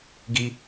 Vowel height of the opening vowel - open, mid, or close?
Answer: close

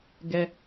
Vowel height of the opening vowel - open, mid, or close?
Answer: mid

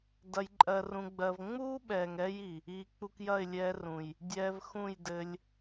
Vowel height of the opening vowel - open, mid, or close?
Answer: open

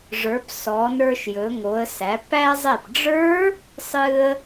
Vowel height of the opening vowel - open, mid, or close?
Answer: mid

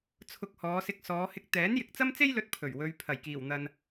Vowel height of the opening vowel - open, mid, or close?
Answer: close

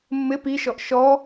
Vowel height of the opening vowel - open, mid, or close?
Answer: close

